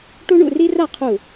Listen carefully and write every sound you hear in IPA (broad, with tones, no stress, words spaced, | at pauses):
ʈu˥ɳṵ˥˧ri˥ ra˥˧qʰu˧˩